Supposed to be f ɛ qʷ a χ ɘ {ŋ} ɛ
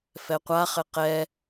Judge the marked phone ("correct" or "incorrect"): incorrect